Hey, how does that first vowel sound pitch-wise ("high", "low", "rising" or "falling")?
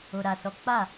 low